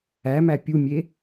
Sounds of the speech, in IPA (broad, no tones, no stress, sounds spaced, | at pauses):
æ m æ pʲ u mʲ e